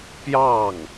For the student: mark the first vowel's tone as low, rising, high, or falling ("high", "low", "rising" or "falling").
falling